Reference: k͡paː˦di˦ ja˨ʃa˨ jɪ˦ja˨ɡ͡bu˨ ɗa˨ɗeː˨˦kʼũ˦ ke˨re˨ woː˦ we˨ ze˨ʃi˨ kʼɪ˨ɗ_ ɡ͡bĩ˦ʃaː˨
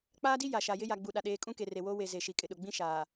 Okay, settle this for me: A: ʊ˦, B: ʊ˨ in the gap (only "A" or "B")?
B